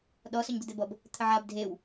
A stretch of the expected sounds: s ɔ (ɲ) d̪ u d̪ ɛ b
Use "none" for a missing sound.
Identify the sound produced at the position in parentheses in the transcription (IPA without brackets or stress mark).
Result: ɲ